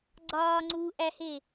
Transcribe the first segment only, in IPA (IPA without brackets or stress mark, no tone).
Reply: ɡ͡ǀ